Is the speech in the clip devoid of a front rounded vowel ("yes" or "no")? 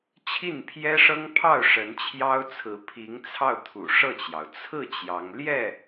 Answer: yes